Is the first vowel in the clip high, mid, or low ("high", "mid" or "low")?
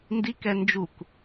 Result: high